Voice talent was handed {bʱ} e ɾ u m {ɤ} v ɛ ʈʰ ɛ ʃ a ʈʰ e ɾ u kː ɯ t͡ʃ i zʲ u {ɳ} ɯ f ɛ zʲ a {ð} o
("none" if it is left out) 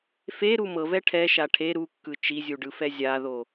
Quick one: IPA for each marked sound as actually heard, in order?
f, ɤ, ɖ, ð

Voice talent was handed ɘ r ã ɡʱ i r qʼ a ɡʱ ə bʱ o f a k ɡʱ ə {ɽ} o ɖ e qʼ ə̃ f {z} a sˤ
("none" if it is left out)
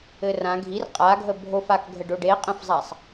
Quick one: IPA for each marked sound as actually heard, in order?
ɖ, zˤ

